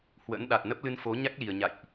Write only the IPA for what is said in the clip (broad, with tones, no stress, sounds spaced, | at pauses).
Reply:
h w ə̰˧˥ n ɗ a˨˩ t̚ n ə˦˥ p̚ l ɨ˧ n f o˨˦ ɲ a˦˥ k̚ l i˨˩ ə̯ ɲ a̰˧˨ j ʔ